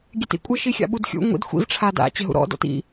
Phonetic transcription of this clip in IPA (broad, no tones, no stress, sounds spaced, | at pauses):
ɡʲ e t ḭ kʷʼ ɪ ʃ i xʲ a̰ ɓ u d xʲ ṵ ŋʷ ḭ d xʷ ḭ v ʈ͡ʂʰ a d a̰ t͡ɕ ɪ ɦ ṵ ɾ ɔ̰ d ɔ̰ t ḭ